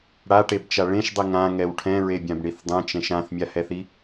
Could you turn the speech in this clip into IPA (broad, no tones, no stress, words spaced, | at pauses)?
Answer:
ɽaʈebt͡ʃa ɭẽʃdˤi ŋãŋɛw ʈʰɛ̃ɹebʲãbɳiθ dˤɛ̃t͡ʃɛ̃ʃ ãθmʲahɛθi